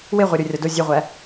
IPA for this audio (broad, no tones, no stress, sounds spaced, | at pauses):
w e ʁʷ æ ɾʲ o rʲ ɒ d o zʲ e ʁʷ æ